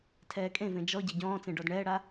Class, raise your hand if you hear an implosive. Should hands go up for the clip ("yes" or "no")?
no